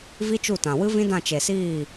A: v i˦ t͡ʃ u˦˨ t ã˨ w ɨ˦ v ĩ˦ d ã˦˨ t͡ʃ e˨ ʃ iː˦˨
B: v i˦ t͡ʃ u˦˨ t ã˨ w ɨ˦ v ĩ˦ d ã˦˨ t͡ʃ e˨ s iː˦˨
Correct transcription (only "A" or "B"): B